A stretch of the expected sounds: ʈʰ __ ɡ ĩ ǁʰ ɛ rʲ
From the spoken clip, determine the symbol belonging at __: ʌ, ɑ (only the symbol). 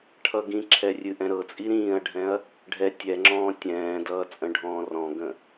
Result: ʌ